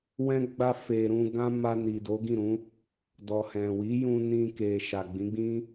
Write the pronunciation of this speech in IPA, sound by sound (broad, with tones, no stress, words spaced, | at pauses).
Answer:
wɛ̃˦ ɡ͡ba˧fe˨ ɾũ˧ɡã˦ ma˧ni˨ do˨˦ɡĩ˦˨ɾũ˨˦ | dɔ˨hɛ̃˨ wi˨˦jũ˧ nĩ˧ke˨ ʃa˨ɡ͡bĩ˨˦ɡ͡bĩ˦